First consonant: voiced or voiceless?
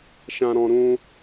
voiceless